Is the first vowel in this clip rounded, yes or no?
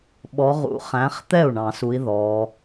yes